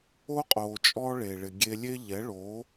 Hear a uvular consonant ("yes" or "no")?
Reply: yes